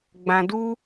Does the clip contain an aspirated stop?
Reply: no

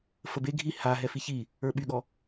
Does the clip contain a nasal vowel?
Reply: no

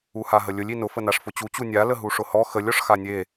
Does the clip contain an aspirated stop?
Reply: no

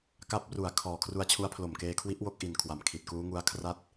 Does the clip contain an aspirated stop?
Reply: yes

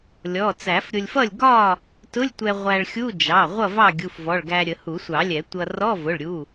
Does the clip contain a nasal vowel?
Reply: no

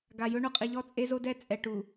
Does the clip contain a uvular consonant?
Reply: yes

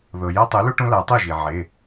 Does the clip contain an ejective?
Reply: no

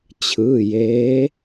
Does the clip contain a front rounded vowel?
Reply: no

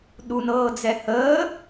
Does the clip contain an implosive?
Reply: yes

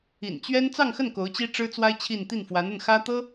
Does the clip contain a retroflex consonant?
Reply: yes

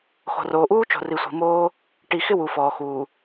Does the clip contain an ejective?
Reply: no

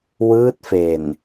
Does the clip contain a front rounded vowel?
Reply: no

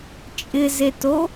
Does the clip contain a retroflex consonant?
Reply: no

